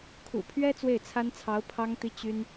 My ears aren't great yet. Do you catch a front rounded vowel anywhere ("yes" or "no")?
yes